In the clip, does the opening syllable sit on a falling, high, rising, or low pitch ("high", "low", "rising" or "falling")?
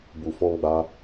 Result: low